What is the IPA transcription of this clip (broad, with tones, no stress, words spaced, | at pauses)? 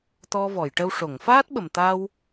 t̪ɔ˧vɔ˨˩˨jʈə˧w ʂo˨˩˨ŋfaː˦˥t̚ɓə˨˩mt̪a˧w